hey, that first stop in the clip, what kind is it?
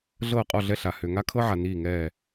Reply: ejective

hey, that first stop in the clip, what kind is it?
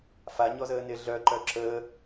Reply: click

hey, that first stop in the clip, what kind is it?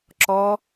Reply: click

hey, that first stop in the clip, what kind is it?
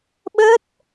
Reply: implosive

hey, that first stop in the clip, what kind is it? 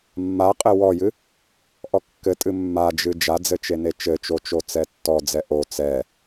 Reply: ejective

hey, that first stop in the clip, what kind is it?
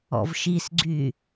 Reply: click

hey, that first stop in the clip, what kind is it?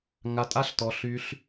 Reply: ejective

